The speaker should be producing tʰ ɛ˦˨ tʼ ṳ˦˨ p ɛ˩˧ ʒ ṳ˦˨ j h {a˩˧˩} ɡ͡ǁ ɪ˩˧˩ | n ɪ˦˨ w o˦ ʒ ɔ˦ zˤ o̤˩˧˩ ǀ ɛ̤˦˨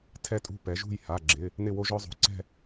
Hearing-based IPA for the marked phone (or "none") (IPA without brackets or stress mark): a˩˧˩